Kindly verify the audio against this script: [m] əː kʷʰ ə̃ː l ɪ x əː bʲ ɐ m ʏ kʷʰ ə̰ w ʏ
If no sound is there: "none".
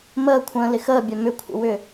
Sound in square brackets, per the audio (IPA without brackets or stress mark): m